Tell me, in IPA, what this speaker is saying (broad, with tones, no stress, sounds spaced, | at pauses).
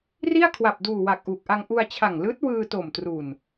r i˥˩ a̯ kʰ w a˨˩ p̚ d uː˨˩ w a˨˩ k̚ ʔ uː˨˩ k̚ ʔ a˧ ŋ ʔ u˧ a̯ t͡ɕʰ a˨˩ ŋ l ɯː˦˥ t̚ w ɯː˧ t o˨˩ m t r u˨˩ n